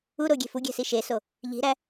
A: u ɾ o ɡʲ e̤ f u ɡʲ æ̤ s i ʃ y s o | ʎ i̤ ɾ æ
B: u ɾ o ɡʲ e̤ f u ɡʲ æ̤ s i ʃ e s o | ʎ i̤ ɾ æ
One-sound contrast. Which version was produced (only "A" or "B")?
B